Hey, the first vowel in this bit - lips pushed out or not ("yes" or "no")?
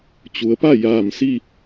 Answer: yes